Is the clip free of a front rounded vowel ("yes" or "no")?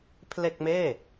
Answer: yes